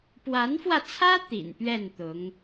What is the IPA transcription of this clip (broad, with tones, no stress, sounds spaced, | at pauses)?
p w a˧˥ n f w ä˧ t͡sʰ ä˥ t̪ ḭ˨˩ n p ɥ ɛ˥˩ n t̪ ʊ˧˥ ŋ